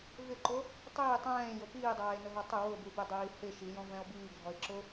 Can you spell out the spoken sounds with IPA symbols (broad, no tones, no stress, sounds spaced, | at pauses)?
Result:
v ɪ ǃ o | tˤ iː tˤ ɛ̃ː j o p iː dˤ aː e̯ n ʊ ɦ ɔ tˤ ɪ w ʊ b u b e dˤ iː h ɪ ʃ i j ɔ̃ v ɛ̃ o̯ b iː ɡʱ ɔ e̯ ǁ ʊ